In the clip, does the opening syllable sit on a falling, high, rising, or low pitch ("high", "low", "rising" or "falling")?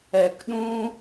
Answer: low